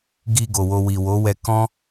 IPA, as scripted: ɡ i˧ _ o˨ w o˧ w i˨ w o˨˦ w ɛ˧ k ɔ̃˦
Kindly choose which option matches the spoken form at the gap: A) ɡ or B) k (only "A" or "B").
A